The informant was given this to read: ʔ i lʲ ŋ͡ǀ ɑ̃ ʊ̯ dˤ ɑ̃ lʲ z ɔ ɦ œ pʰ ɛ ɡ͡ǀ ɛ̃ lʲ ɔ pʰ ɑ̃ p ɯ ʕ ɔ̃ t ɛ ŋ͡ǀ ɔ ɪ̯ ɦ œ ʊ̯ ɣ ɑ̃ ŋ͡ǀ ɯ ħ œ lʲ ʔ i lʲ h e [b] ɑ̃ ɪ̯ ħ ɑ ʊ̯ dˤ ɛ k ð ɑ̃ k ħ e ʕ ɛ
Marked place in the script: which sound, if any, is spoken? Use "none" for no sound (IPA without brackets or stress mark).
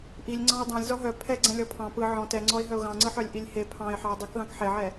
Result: pʰ